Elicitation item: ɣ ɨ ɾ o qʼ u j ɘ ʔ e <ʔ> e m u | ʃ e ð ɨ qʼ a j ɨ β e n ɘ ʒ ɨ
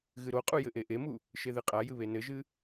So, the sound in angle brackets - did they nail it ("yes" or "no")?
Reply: yes